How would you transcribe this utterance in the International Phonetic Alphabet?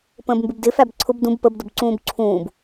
p ə̃ː b m b ɪ b d ɪ f æ b ǀʰ ʊ b d ũ b p ə b d ʊ b ǀ ũː b ǀʰ ũː b

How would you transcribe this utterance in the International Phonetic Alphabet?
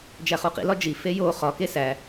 d͡ʒ æ χ u q ḭ l ɒ d͡ʒ i f e j o χ ɒ k e s æ

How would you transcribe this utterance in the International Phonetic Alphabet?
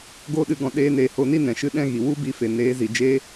ɡ o˧ ɗ ɨ˨ ɡ ɔ̃˨ ɗ eː˧ n eː˨ h o˧ n i˦ n ɛ̃˨ ʃ ɨ˧ ɗ ɛ̃˦ ɣ i˨ w u˦ b i˧ f e˨ n eː˨˦ z i˨ d͡ʒ e˦

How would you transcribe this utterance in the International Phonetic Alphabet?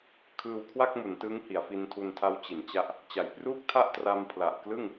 kʰ ɯː˧ w kʰ w a˥˩ k̚ m u˩˦ n t ɯ˦˥ ŋ h i˩˦ a̯ f i˧ n tʰ u˧ n tʰ a˦˥ w t͡ɕ i˩˦ n t͡ɕ a˦˥ ʔ | t͡ɕ a˩˦ j p r uː˥˩ k̚ tʰ a˥˩ ʔ t r a˧ m pʰ l a˨˩ ʔ k l ɯ˥˩ ŋ

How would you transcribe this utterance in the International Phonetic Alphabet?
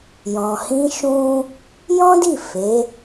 j ɔ̃˨ h ĩ˧ ʃ ũ˦ | j ɔ̃˦ d i˦˨ f e˨˦

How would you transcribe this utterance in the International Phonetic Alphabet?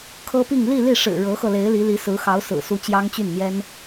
kʰ ɤ˥ p i˥˧ ŋ l i˥˧ l i˥˩ ʂ ɻ̩˨˩ ɻ ɤ˧˥ x ɤ˧ l e˧˥ ɪ̯ l i˧˥ l i˧˥ s ɹ̩˧˥ x ɑ˧˥ ʊ̯ s ɹ̩˨˩ s u˧˥ t͡ɕ j ɑ˥ ŋ t͡ɕ y˥˩ n n̪ j ɛ˥ n

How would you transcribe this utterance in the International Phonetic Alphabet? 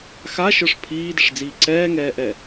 x a ʃ ə˞ ʂ pʰ iː d ɪ ʂ d͡z iː ǀ ɛː ŋ ɛː ʔ ɛ

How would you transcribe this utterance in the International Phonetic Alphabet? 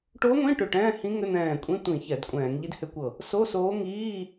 ʈ o˧˥ ŋʷ ĩ˧˥˧ ʈ ʏ˧˩ ʈ ɛ̃ː˧˥˧ h ĩ˧˥ ŋ ʏ˧˥˧ n̪ ɛ̃ː˧˩ kʷʼ ĩ˧˥˧ tʷ ĩ˧˩˧ ç ɛ˧˩˧ d kʷʼ ɛ̃ː˧˩˧ ŋ ʎ i˧˥ d h ʏ˧˥ kʷ ɤ˧˩ | s o˧˥˧ s oː˧˥ ŋ iː˧˥˧

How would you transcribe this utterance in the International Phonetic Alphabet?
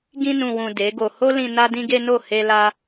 ɡ ĩ˧ n ũ˨ w ũ˨ d e˨˦ ɡ o˧ h o˦ l ĩ˧ n a˦ d ĩ˦ ɡ e˦ n o˦˨ h e˧ l a˧

